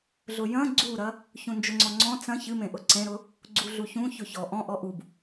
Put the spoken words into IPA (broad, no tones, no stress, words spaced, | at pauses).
ɮʊjɐ̃ ɡ͡ǀuɾɐ | çũnd͡ʒʊŋ͡ǀɔŋ͡ǀɔ̃ t͡sɐ̃ çɨmẽ ʔʊǀẽɾʊ | ɡ͡ǀuɮuçũ çʊçɔ ʔɔ̃ ʔɔʔub